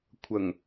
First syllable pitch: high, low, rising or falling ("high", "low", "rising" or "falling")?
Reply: low